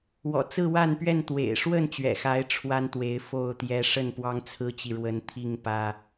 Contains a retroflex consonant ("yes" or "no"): yes